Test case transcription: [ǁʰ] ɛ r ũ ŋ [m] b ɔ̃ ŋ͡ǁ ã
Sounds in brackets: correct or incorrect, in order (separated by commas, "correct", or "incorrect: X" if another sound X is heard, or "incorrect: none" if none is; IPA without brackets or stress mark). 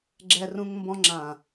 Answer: incorrect: ɡ͡ǁ, correct